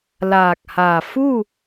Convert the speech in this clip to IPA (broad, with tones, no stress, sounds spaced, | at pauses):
l aː˧˩ k̚ h aː˧˩ f u˥˨